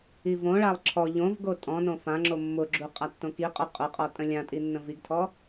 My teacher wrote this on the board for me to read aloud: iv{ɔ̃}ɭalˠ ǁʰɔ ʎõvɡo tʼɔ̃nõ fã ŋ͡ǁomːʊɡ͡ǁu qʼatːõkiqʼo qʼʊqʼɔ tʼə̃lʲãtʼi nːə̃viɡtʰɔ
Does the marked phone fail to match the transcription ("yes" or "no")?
yes